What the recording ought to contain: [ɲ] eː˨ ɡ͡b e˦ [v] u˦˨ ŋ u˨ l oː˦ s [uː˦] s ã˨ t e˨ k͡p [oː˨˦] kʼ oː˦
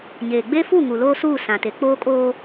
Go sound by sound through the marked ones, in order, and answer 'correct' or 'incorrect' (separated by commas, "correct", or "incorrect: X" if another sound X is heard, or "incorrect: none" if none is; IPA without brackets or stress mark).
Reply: correct, incorrect: f, incorrect: uː˦˨, incorrect: oː˦